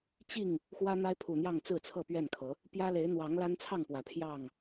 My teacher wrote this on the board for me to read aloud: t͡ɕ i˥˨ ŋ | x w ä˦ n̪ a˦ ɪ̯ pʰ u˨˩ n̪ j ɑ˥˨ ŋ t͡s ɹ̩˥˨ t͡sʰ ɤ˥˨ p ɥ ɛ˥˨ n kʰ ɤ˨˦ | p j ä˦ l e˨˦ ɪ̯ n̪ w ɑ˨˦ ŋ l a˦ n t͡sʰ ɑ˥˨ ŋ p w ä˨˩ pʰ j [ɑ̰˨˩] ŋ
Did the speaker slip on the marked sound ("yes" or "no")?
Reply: yes